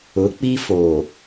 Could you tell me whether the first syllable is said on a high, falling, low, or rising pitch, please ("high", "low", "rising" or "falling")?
rising